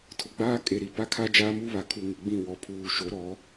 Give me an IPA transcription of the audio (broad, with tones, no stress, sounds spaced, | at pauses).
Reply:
tʰ ʊ˨˦ ɡ͡b aː˦ kʼ e˨ ɾ i˨ p a˦ kʰ a˦ d͡ʒ aː˦ m uː˦ β a˨ kʰ u˨ ŋ ɪ˨ ɡ͡b ĩ˦˨ w ɔ˨ pʰ uː˨ ʃ o˨˦ ɾ ɔ˨˦